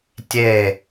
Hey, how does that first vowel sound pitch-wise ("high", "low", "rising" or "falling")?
falling